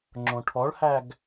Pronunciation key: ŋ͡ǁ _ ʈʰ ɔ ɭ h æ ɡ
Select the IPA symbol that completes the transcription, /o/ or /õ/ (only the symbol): õ